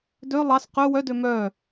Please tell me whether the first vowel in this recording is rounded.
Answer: yes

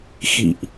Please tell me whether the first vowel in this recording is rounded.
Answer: no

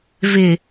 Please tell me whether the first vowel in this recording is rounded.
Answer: no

